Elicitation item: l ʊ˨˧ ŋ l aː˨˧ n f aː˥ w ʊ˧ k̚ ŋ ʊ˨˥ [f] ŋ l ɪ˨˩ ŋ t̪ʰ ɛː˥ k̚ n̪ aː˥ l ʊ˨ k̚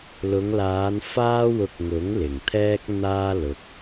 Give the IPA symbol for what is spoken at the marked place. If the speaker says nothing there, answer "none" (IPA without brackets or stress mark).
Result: none